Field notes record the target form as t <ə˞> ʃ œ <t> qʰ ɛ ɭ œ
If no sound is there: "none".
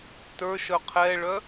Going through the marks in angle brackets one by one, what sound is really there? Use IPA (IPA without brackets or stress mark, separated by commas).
ə˞, none